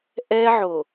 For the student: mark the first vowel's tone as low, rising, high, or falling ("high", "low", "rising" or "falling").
high